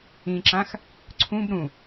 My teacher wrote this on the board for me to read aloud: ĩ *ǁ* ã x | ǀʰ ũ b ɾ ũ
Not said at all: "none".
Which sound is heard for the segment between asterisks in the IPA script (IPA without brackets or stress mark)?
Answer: ǁ